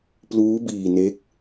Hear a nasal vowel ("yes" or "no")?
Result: no